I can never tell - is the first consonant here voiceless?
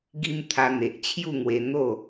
no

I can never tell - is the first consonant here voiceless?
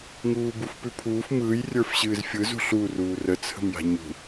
no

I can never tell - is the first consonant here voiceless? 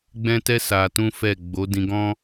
no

